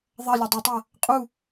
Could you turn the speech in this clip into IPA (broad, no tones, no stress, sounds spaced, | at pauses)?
ðˤ ɐ lʲ ɐ dˤ o tˤ ɐ | qʼ u